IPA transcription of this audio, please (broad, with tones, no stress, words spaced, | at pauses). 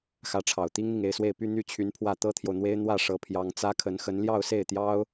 xä˧˥ʈ͡ʂʰɑ˨˩ʊ̯t̪i˥ŋn̪i˨ŋ e˥˧ɪ̯swe˥˩ɪ̯py˥ n̪y˥t͡ɕʰy˧˥npʰwä˥˩ t̪ɤ˥t̪ʰjo˨ʊ̯n̪we˥ɪ̯ n̪wä˥˩ ʂɤ˥pʰjɑ˥ŋ t͡sä˥kʰə˧˥nxə˧˥n ljɑ˥˧ʊ̯se˥˩ɪ̯t̪jɑ˥ʊ̯